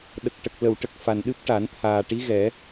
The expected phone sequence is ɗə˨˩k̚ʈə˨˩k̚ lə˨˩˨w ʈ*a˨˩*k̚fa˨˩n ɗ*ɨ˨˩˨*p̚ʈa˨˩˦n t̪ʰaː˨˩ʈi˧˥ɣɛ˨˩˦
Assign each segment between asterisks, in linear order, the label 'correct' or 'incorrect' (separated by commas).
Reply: incorrect, incorrect